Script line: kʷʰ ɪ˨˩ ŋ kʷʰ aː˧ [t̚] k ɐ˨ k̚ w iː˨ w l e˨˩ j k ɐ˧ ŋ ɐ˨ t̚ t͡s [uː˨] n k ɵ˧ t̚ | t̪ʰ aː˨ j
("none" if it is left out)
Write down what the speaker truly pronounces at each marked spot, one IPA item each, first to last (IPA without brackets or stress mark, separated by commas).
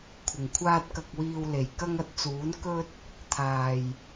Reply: t̚, uː˨˥